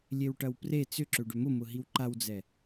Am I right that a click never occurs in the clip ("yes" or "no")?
no